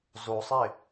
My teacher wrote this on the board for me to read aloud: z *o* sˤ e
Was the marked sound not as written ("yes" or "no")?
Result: no